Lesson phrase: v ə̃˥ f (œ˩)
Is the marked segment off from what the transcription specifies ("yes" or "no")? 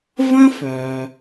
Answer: no